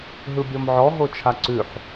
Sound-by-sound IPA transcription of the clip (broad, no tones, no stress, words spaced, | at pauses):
ɦɯbʲɔmʕɔ ɦot͡ʃʰaǀʉħ